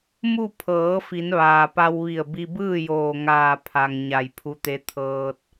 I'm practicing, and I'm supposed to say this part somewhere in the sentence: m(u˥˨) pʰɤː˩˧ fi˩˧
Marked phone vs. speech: correct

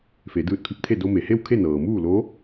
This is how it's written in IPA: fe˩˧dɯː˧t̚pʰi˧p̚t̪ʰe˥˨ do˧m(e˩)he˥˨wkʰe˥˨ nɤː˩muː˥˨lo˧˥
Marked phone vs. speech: correct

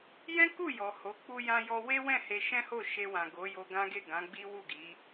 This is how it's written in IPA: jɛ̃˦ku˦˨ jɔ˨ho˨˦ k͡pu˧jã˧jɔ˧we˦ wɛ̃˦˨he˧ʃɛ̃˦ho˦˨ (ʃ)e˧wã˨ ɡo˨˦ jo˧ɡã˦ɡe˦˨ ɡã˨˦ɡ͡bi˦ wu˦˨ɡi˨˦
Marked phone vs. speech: correct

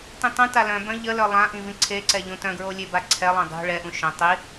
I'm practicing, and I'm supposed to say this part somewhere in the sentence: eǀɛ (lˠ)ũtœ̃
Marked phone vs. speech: incorrect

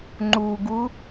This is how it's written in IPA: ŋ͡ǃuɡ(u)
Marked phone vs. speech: correct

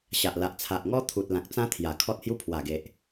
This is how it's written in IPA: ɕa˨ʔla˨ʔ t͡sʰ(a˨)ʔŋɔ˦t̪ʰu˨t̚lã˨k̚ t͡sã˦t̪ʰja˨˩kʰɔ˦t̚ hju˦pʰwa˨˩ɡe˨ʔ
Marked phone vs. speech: correct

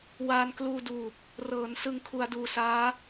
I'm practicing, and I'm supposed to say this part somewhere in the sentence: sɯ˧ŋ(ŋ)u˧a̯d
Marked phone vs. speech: incorrect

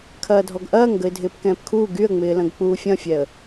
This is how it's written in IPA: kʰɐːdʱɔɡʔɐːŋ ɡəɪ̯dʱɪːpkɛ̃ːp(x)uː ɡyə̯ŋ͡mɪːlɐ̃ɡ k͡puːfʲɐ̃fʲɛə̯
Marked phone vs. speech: incorrect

